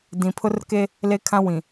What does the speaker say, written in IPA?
dĩ˨pʰʊ˦rke˦ | le˦kʰã˦wĩ˨

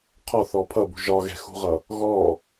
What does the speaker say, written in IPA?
qʰɔθɔ pʰʌbṳ ʒɒɣɛ̤xṳʁʌ | ɣɔ

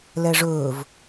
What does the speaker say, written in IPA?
lɛʐɵːv

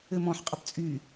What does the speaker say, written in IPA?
ɘmɔ̃ħ qʼʌpt͡sʼy

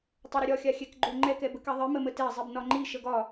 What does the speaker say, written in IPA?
tˤɘɾəɾʲɒ xʲaxʲɛkɡ͡ǃoŋ͡ǃɛk ɛbəkɛðˤi məmətɛ zˤibnɒŋ͡ǃi ʃəɡɒ

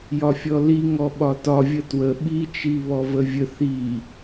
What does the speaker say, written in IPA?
jɒfʲɔliŋɔ ɓɒtɒ vʲətwə ɓi t͡ʃiβɔvəvʲə θi

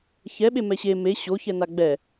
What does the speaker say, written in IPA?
çɛɓe mɛɕe me ɕoçɛna ɡ͡bɛ

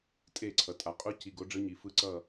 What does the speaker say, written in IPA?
tʼe˥˨ ǀʰʌ˨tʼa˨˦ qʼu˦˥ ci˧˥˧ɡ o˦˥ɖ͡ʐɯ˦˥ɲi˨˦ fɯ˦˥ ǀʌ˥˨

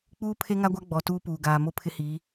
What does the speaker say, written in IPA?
k͡puː˦pʰe˦ŋa˦ɡʷa˦ ɡ͡bɔ˨ tuː˦puː˨ ɡaː˨mo˦pʰɪ˦hiː˨˦

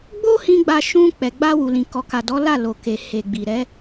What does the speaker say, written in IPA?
ɡ͡bo˦hĩ˧ ɡ͡ba˧ ʃũ˧ k͡pɛ˨ɡ͡ba˧wu˨lĩ˨ kɔ˨ka˨ dɔ˨˦la˦˨ lo˨ke˨he˨ɡ͡bi˨ ɾɛ˨˦

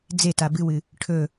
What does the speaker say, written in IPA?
d͡zeta bɨwɨ | ʈʰɵ

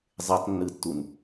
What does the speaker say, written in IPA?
zˤetˤnːɯtːun

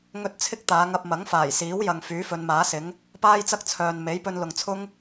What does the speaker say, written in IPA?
ŋɵ˥t̚ t͡sʰɪ˥k̚ t̪aː˨˧ŋɐ˧p̚mɐ˨˥ŋ faː˨˩jsiː˨˥wjɐ˨ŋ fyː˨˥fɵ˨˧nmaː˨˥sɪ˨˥ŋ | paː˥jt͡sɐ˥k̚t͡sʰœː˨n me˨˥jpɵ˧nlʊ˨ŋt͡sʰʊ˥ŋ

